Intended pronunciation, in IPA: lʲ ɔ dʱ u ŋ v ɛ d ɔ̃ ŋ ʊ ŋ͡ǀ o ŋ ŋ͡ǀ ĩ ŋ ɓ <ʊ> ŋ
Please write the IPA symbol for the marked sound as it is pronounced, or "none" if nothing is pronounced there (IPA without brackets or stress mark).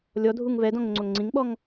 ɔ